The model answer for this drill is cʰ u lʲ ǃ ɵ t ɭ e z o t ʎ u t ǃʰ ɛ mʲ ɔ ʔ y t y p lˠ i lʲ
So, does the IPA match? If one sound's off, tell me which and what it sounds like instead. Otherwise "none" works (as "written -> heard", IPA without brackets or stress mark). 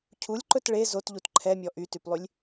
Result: i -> y